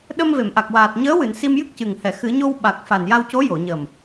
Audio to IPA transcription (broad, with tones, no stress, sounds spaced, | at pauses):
ɗ ə˧ m v e˨˩˨ m ʔ a˨˩ k̚ w aː˨˩ t̚ ɲ əː˧˥ w ɨ˨˩˨ n s i˧ m j ɨ˦˥ k̚ c ɨ˨˩ ŋ h ɛ˨˩˨ x ɨ˨˩˦ ɲ o˧ w ɓ a˨˩ k̚ f a˨˩ n j a˧ w c o˧˥ j o˨˩˨ ɲ ə˨˩ m